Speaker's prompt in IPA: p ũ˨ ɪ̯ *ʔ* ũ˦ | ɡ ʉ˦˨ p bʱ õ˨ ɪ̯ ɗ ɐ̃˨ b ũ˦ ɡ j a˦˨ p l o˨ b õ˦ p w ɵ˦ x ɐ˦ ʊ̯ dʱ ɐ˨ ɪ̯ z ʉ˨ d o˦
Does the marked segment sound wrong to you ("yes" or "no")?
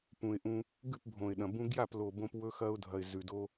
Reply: no